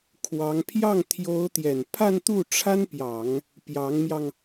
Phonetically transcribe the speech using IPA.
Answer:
kʰ w ɑ˧˥ ŋ pʰ j ɑ˥˩ ŋ t̪ʰ j o˧˥ ʊ̯ t̪ j ɛ˨˩ n pʰ a˥˧ n t̪ u˥˩ ʈ͡ʂʰ a˥ n p j ɑ˨˩˦ ŋ | p j ɑ˧˥ ŋ m j ɑ˧ ŋ

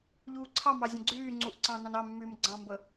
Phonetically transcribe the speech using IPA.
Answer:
ʎ uː ǀʰ ɑ m ɑ zʲ ə̃ ɡ͡ǀ yː ŋ͡ǀ u ʔ ǀ ɑ̃ n ɑ̃ n ɑ mː yː m ɡ͡ǀ ɑ̃ m b ə

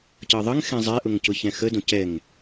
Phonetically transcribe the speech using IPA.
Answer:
c ɤ ðˤ ə ŋ x ɛ̃ zˤ ɛ ʔ ʊ ŋ c ʊ ç ɛ̃ x ə d õ c ɛ ŋ

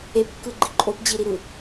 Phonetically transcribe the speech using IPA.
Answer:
e p kː ɯ ɡ͡ǃ i ǃʼ o p d͡ʑ i ɾ i ɾ ɯ

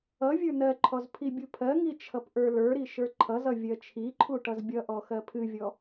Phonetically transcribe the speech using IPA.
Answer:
ʌ vʲ ə˞ n ɜ ǃʰ ɔ z pʰ i bʲ u pʰ ɜ ŋ i t͡ʃʰ ʌ p ʔ ə˞ l ə˞ ɾ i ʃ ə˞ ǃʰ ʌ z ʌ vʲ ɜ t͡ʃʰ i ǃʰ u ʈ ʌ z bʲ ʌ ʔ ɔ x ɜ pʰ ɨ vʲ ɔ

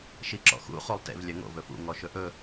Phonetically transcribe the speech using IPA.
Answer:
ʃ i ǁ ɔ̰ x ṵ χ u lˠ t ḛ v lʲ œ ŋ o̰ v ɵ f ṵ ŋ ɔ ʃ ɵ ʔ ɵ

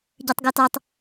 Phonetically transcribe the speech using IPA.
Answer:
ɟ əː tˤ ɡ əː t ɒ tˤ

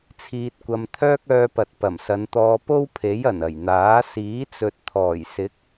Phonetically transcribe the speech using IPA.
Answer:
t͡sʰ iː˧ t̚ kʷ ɐ˧ m t̪ʰ œː˥ k̚ œː˧ p ɐ˨ t̚ p ɐ˨˩ m s ɐ˨˧ n t̪ ɔː˧ p o˥ w pʰ e˨˥ j ɐ˨˩ n ɐ˨˩ j n̪ aː˨˥ s iː˨˥ t͡s ɵ˨ t̚ t̪ʰ ɔː˨˩ j s ɪ˨˥ k̚

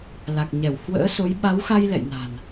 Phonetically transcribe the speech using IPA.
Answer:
l a˨˩ k̚ ɲ ɛ˧˩ w h w ə̰ː˧˥ s o˨˦ j ɓ a˨˦ w x a˧ j l ɛ̰˧˨ j n a̤˨˩ n

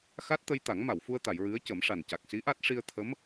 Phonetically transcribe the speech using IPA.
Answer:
x a˦˥ t̚ t̪ ə˧ j t̪ a˨˩˦ ŋ m a˨˩˨ w f u˧ ə̯ t̪ a˨˩˨ j ɹ ɨ˧˥ ə̯ c ə˨˩˦ m ʂ a˨˩ n c a˨˩ k̚ s i˧˥ ʔ a˦˥ t̚ ʂ i˧ ə̯ t̪ʰ ə˧˥ m

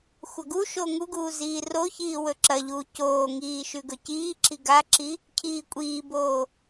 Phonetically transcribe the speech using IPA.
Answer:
xʷ ɐ ɡ u ʃ o ŋ u ɡ uː z iː r o ç iː w ɵ ǁ ɐ ʎ uː c oː ŋ iː ʃ ʉ ɡ ɵ c iː ǁ i ɡ a ǁ i | cʰ iː kʷʼ iː b oː

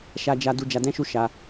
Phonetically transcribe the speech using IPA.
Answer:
ʃ a˦ d͡ʒ a˦ d u˦ d͡ʒ a˧ d ɛ̃˦ ʃ u˦ ʃ a˧

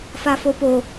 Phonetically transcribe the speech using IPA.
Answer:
f a f o p o

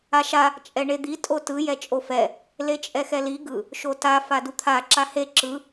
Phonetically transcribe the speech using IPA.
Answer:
a ʃ a | t͡ʃʼ ɛ ɳ e d̪ i tʼ o t ɯ j ɛ t͡ʃʼ o f ɛ | l e t͡ʃʼ ɛ x ɛ l i ɡ ɯ | ʃ o t a f a d u t̪ʰ a ǁ a h e ǁ ɯ

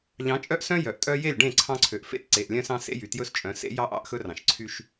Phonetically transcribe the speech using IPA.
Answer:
ʎ ɑ̃˨˦ t͡ʃʼ œ˦ ʔ s œ̃˦ j œ˨ ʔ tʼ œ˦ j e˦˨ lʲ ɖ ẽ˦˨ ǀʰ ɑ̃˦ ǀʰ ø˨ ʔ f ḛ˦ t ǀ e˨ ʔ lʲ œ̃˦ s ɑ̃˦ s ḛ˦ j y˨ t j ɵ˦ s t͡ʃʼ œ̃˨˦ s ḛ˦ j ɑ˦ ʔ ɑ̰˦ ʔ x ɵ˦ r ɑ̃˨ ʃ ǀʰ y˦ ʃ

